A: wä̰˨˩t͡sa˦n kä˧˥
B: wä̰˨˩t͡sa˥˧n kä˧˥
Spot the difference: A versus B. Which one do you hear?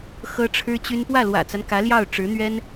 A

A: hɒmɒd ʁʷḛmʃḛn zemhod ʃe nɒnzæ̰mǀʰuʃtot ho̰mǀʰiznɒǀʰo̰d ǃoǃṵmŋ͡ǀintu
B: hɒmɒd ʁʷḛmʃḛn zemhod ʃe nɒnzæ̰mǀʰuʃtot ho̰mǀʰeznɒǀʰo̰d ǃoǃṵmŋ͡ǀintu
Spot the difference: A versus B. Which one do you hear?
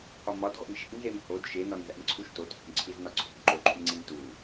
A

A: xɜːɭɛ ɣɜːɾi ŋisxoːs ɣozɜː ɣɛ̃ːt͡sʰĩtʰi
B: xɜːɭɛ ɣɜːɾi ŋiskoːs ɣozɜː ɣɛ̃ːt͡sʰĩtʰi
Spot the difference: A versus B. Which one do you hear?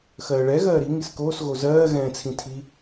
B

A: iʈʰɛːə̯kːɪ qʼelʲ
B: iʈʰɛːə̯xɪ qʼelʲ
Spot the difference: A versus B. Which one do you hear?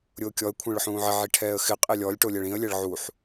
B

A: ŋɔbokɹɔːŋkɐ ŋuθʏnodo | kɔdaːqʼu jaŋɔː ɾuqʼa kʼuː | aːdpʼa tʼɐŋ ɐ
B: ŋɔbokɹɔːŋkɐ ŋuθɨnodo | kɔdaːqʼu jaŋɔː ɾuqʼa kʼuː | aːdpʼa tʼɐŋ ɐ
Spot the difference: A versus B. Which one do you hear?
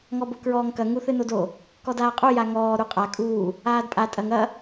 B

